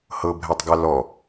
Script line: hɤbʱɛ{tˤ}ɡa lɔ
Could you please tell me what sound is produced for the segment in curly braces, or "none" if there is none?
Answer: tˤ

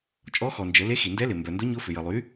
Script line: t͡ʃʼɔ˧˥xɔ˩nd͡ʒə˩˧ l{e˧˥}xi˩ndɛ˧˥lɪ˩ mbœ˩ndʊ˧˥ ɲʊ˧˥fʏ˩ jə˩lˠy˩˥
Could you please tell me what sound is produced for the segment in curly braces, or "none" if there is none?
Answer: e˧˥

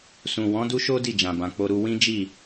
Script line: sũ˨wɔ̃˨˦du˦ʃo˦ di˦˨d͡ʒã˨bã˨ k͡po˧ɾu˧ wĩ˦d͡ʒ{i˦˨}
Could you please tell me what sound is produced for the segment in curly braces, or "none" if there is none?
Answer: i˦˨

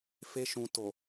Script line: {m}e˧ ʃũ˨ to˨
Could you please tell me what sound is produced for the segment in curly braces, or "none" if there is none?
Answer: f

